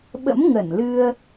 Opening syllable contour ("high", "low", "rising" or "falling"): rising